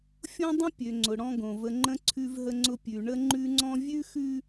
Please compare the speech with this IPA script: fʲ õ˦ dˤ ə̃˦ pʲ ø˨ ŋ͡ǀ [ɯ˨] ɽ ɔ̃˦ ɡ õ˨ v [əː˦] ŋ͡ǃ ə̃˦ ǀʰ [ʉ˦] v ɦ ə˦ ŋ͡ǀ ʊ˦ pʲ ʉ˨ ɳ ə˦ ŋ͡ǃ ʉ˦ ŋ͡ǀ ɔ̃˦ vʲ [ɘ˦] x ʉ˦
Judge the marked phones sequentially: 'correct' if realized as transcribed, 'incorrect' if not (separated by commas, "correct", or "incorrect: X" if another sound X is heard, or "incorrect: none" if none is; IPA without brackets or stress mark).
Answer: incorrect: ʊ˨, incorrect: ə˦, correct, incorrect: ʉ˦